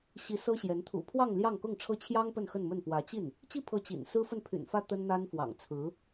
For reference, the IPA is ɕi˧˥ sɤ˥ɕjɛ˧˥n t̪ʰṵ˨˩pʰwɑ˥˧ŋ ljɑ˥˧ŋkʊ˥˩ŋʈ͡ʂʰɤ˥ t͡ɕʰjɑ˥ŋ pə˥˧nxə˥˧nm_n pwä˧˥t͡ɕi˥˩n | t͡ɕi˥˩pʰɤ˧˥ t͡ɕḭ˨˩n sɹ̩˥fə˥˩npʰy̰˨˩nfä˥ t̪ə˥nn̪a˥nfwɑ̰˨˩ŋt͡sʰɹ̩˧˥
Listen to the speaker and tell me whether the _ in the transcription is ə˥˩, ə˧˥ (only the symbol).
ə˥˩